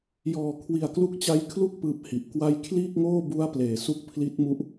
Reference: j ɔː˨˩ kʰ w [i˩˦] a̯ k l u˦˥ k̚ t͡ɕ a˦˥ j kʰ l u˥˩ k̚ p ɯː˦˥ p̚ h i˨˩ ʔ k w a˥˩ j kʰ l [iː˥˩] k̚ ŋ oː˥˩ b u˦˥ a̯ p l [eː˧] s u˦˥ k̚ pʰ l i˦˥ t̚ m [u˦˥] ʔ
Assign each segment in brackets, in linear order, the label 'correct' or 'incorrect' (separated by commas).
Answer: incorrect, correct, incorrect, correct